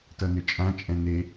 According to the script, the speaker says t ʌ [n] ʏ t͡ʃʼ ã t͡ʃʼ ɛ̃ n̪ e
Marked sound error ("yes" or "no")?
no